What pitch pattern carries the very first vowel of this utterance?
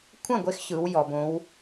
falling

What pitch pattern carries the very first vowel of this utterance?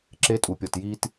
rising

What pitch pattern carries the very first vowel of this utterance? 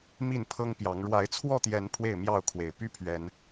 falling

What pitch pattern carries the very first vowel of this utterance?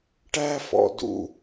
high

